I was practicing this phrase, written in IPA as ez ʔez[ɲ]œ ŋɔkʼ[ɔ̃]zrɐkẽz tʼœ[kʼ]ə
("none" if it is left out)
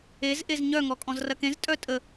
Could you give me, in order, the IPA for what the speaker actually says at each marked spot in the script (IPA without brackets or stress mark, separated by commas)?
ɲ, ɔ̃, tʼ